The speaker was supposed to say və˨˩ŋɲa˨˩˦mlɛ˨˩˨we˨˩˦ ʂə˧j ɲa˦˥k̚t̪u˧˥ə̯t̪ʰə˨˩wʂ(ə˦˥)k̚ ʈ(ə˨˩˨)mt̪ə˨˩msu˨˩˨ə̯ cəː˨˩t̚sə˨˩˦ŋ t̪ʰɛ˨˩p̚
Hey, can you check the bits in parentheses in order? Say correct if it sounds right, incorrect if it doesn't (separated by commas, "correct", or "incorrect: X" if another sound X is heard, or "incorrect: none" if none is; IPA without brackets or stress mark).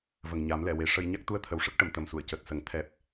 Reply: correct, correct